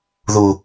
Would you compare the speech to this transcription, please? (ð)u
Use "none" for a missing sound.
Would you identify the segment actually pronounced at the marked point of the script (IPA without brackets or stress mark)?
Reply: ð